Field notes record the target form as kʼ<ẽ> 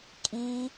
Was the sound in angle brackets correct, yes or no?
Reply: no